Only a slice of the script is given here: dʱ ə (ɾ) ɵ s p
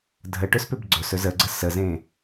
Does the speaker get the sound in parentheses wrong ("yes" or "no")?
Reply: yes